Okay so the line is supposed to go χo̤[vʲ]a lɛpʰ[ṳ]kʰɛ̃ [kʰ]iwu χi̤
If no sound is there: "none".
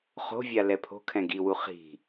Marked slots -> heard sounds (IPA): vʲ, o̤, ɡ

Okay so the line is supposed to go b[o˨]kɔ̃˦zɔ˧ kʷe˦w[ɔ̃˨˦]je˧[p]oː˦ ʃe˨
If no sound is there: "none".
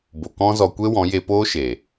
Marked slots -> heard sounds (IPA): o˨, ɔ̃˨˦, p

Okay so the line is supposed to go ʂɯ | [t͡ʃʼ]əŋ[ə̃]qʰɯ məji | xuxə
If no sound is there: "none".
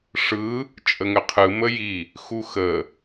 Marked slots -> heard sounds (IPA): t͡ʃʼ, ə

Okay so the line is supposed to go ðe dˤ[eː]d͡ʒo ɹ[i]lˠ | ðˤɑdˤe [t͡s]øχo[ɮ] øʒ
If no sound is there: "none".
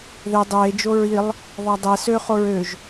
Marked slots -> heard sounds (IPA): eː, i, s, ɹ

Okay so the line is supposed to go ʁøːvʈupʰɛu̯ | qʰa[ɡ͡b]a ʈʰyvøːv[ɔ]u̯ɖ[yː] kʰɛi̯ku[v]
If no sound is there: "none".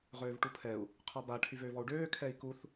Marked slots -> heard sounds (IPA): b, ɔ, øː, θ

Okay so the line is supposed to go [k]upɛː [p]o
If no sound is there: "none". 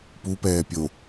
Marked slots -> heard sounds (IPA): p, pʲ

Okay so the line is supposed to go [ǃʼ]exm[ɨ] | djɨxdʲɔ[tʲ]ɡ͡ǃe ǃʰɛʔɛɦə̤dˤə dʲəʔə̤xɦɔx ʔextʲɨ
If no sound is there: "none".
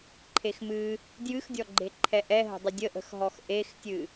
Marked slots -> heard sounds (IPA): ǃʰ, ɨ, none

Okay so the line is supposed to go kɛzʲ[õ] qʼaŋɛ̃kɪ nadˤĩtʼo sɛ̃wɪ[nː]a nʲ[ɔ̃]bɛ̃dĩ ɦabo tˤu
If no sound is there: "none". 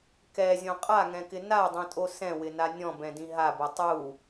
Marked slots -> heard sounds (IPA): õ, n, ɔ̃

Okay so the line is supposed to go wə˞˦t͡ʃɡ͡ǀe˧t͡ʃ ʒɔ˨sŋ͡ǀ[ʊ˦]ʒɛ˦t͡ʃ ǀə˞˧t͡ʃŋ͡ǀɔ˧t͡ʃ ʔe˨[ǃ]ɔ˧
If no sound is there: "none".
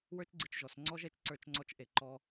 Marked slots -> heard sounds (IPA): ɔ˦, ǃ

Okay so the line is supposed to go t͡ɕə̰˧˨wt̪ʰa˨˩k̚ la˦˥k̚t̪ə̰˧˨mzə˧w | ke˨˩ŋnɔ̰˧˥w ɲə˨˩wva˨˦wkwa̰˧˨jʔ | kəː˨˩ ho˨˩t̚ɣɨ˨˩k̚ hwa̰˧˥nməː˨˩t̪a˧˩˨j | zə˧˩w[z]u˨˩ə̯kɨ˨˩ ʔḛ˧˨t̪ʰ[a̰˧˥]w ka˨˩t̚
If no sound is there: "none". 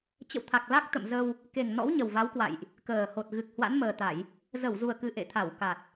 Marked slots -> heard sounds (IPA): z, a˧˩

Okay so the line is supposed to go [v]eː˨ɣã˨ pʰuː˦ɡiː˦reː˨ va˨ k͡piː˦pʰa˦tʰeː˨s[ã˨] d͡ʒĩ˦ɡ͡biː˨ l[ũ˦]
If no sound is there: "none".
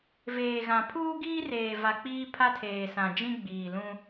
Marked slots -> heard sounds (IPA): v, ã˨, ũ˦

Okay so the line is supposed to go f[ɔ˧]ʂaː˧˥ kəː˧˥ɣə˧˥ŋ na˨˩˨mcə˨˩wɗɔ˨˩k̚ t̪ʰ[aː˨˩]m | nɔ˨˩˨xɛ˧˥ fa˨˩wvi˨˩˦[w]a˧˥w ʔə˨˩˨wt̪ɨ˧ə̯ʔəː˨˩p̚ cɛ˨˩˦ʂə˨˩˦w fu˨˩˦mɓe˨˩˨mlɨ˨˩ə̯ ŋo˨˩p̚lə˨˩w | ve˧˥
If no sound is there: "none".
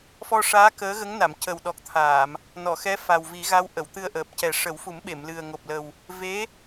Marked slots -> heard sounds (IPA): ɔ˧, aː˨˩˨, ɣ

